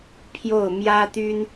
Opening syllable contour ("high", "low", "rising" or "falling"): falling